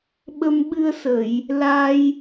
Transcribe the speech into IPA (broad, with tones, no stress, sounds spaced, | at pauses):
ɓ ə˧ m ɓ ɨ˧ ə̯ s ə˨˩˨ j | l a˧ j